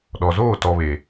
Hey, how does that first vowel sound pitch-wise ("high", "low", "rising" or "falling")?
low